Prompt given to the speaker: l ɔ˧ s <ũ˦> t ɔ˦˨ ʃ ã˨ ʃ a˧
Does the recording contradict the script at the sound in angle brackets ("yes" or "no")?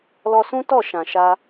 no